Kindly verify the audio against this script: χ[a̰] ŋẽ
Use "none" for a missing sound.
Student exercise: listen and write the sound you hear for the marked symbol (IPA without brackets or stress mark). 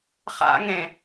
a̰